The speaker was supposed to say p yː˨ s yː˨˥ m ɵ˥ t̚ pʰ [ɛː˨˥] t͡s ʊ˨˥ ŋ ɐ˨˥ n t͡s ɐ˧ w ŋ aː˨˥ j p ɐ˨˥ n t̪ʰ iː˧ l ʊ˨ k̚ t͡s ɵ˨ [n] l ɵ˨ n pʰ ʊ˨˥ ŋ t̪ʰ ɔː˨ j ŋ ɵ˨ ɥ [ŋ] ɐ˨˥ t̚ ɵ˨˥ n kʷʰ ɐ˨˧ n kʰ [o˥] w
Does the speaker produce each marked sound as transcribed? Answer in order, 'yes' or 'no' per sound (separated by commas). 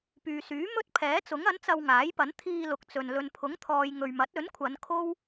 yes, yes, no, yes